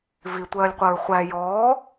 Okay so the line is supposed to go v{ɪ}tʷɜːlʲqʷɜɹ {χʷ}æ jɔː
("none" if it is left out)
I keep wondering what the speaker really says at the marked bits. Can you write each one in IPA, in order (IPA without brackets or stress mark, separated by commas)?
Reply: i, χʷ